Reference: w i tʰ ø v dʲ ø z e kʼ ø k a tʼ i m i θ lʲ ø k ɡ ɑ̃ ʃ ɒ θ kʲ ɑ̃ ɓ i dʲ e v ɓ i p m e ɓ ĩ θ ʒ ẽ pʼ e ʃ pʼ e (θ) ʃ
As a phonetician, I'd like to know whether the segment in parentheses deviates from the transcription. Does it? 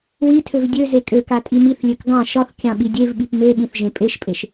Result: yes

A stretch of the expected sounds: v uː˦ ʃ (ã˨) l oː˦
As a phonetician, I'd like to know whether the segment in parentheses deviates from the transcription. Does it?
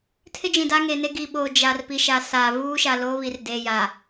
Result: yes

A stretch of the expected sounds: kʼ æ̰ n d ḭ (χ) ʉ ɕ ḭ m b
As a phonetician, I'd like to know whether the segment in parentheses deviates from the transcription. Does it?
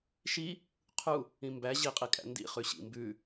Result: no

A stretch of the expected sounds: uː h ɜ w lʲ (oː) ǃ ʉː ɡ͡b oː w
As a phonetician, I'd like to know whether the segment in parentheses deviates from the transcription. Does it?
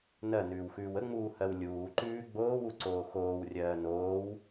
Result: yes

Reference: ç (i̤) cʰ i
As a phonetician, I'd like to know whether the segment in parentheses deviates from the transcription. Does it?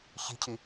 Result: no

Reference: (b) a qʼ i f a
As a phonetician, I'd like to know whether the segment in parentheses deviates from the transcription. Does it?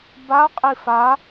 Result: no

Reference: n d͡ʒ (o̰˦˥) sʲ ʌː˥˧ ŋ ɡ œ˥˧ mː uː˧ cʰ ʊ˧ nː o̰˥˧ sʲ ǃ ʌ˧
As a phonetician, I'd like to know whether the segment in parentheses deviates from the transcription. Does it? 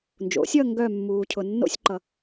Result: yes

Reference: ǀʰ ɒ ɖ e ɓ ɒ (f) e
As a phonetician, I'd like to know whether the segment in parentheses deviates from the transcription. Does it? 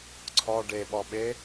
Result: yes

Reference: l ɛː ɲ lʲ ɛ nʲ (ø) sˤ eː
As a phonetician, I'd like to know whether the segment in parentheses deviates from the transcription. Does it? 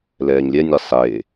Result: yes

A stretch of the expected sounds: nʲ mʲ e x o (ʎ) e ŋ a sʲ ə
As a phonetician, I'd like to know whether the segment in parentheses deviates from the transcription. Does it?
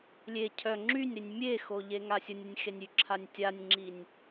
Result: no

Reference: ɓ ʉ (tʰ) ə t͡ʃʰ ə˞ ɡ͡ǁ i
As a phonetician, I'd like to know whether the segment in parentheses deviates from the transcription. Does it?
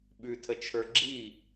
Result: no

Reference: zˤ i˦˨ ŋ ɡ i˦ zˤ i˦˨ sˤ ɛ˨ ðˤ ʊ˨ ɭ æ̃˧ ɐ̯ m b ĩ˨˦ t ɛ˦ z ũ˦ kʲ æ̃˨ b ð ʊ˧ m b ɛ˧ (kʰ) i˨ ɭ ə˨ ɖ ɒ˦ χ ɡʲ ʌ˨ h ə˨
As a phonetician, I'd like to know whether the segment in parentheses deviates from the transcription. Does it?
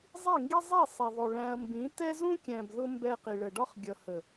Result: yes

